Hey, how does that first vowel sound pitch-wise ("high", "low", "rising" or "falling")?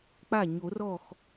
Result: falling